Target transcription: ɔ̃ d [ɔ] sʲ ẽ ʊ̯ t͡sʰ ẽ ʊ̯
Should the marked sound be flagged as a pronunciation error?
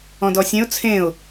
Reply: no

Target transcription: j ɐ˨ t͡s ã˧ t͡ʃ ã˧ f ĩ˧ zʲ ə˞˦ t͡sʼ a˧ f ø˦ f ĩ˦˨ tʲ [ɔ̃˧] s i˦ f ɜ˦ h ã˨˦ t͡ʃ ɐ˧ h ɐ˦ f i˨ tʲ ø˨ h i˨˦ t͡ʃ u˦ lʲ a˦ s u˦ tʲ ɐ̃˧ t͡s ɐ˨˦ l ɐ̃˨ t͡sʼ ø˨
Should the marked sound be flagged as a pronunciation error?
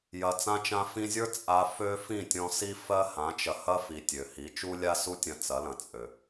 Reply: no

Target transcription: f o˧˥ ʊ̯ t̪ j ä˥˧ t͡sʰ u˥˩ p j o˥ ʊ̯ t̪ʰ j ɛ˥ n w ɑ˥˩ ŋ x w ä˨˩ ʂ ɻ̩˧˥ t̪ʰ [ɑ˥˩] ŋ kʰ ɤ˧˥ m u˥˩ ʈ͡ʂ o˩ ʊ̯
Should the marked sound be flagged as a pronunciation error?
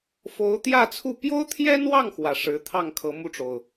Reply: no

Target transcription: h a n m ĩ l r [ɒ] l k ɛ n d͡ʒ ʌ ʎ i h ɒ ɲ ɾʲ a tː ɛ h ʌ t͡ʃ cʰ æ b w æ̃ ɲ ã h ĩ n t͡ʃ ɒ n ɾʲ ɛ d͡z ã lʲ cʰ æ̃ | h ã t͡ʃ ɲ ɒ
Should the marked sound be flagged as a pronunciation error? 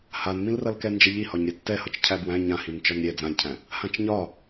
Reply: yes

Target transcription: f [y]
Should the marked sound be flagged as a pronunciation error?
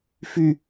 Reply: no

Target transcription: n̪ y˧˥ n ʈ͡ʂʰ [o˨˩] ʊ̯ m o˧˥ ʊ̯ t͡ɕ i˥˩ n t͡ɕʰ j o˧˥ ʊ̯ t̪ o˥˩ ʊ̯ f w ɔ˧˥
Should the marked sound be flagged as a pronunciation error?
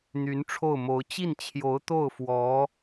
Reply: yes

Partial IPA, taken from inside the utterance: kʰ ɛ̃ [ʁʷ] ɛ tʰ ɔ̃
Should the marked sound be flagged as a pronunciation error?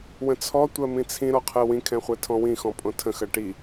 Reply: yes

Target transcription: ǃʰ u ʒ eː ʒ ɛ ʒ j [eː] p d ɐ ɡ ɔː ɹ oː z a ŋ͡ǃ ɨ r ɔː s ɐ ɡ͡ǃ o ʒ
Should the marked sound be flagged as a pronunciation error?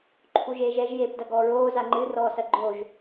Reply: no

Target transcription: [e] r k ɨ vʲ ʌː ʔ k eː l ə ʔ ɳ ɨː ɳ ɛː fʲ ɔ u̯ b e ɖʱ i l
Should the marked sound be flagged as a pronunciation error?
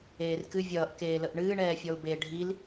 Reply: yes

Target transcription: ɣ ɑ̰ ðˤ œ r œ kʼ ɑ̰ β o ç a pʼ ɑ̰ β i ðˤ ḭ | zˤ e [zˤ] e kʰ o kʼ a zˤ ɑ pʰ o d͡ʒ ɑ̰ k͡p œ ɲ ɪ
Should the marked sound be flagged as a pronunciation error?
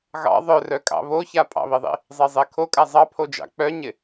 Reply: no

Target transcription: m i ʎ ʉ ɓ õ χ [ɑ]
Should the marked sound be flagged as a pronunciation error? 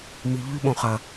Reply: yes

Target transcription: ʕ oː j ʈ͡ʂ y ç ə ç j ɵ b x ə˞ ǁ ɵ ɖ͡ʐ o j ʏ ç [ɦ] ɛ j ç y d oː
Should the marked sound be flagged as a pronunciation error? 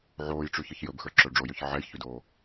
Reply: yes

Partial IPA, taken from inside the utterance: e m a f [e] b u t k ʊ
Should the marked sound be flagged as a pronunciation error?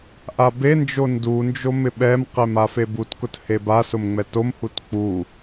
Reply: no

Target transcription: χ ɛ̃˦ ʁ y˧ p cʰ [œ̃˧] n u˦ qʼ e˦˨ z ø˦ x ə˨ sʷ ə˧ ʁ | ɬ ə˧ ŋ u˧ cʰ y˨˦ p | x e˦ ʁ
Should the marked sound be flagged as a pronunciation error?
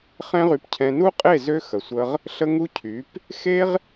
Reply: yes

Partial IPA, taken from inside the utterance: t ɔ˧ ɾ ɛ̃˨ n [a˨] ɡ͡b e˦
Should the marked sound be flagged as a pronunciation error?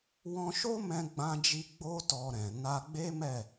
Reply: yes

